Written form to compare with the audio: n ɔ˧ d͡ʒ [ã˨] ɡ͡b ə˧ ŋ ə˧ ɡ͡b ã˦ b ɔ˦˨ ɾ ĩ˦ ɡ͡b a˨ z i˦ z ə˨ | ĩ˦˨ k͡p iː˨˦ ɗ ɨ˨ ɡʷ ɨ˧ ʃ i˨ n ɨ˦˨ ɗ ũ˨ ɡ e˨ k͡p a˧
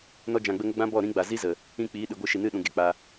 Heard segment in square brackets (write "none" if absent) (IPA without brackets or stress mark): ã˨